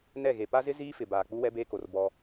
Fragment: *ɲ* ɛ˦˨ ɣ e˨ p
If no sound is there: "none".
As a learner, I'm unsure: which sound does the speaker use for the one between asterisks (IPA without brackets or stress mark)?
n